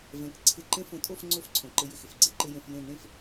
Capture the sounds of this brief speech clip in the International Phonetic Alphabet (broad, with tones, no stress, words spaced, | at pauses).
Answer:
vɛ̃˨kǀʰɪ˧ ǃẽ˧fõ˨tʼo˦˨fŋ͡ǀo˧f ǀʰõ˨ǃɪ˧jɪ˨xɪ˨f ɡ͡ǀɪ˦ǃɪ˧ jẽ˧fjẽ˦˨ n̪ẽ˦˨f